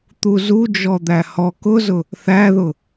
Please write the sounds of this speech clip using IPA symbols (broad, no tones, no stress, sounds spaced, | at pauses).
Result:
t̪ u z u d͡ʒ ɔ d̪ æ h ɔ k ʊ z ʊ | θ æ ð ʊ